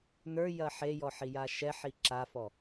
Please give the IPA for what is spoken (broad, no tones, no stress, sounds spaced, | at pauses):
n ə˞ j ɐ ħ e j ɔ ħ i j a ʃ ɛ ħ i ǁ a f ɔ